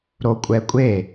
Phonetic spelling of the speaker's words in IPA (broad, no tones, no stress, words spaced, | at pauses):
ɾokʷʼɛkʷʼe